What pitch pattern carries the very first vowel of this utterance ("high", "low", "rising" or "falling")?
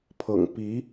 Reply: low